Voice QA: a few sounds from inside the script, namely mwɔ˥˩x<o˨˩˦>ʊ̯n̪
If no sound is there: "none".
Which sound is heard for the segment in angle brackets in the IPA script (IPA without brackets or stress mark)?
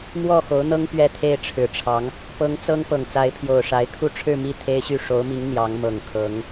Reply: o˧˥